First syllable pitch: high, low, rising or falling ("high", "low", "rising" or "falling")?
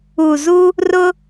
low